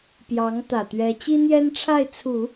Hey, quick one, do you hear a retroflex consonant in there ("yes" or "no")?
yes